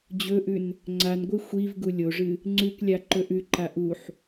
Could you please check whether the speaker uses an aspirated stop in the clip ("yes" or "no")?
no